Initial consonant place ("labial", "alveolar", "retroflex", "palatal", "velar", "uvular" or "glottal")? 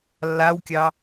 alveolar